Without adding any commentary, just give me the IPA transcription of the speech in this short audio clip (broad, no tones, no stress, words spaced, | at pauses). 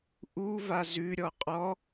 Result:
ʔuva zʉɾʲɔ qʼɔ